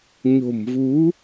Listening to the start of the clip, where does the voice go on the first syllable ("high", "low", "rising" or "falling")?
low